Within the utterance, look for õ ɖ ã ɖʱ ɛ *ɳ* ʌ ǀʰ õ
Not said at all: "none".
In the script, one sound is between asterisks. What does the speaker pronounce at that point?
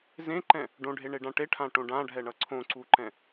ɳ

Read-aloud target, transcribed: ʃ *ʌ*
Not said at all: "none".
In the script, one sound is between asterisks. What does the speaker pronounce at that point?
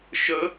ə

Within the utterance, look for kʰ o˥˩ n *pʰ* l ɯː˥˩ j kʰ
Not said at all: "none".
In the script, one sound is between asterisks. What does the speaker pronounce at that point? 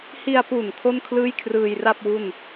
kʰ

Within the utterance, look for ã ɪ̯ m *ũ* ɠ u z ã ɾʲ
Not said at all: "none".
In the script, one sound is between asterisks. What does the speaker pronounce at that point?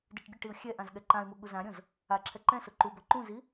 u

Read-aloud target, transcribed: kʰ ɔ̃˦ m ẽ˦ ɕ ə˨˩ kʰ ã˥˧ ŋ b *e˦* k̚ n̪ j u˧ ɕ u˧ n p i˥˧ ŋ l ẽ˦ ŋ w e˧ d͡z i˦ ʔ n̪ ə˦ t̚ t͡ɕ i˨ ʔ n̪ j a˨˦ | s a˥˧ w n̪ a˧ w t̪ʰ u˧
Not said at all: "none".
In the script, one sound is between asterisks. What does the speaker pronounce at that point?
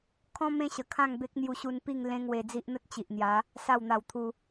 e˦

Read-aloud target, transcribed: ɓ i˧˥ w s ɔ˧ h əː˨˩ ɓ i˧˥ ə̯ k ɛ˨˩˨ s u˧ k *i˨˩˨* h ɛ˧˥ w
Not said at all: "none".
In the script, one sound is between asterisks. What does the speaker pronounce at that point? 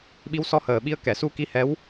i˧˥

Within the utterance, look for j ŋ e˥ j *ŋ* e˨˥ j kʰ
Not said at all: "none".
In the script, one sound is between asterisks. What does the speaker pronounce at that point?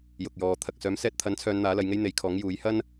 n̪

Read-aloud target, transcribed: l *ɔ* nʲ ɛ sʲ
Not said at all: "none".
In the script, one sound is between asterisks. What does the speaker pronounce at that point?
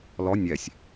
ɔ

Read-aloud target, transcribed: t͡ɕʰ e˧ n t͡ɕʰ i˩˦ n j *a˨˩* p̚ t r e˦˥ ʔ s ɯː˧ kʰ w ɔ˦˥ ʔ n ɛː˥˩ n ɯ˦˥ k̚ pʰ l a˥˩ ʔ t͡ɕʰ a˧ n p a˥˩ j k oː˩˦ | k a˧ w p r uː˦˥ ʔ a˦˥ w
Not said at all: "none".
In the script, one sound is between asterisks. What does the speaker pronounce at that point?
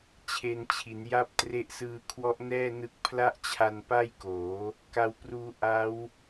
a˦˥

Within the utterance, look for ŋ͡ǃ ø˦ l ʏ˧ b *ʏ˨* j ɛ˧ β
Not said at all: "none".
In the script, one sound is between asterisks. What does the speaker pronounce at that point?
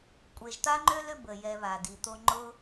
ə˨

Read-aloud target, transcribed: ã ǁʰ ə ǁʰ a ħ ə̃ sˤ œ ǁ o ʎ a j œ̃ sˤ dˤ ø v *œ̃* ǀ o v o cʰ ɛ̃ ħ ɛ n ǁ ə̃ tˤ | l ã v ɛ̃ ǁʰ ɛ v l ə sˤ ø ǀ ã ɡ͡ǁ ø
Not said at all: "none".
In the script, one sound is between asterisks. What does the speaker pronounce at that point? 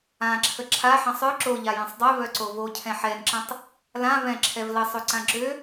œ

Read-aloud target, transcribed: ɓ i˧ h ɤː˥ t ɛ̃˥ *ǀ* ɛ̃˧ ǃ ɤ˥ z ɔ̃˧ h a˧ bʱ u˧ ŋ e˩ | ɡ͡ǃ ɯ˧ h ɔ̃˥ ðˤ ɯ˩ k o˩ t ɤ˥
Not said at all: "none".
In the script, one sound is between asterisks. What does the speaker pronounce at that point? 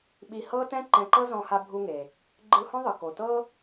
ǃ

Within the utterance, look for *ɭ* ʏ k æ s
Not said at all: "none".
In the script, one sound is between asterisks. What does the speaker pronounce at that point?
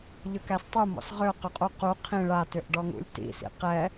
ʎ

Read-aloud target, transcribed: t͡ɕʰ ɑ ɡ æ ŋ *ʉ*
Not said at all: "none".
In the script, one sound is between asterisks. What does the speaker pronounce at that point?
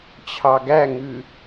ʉ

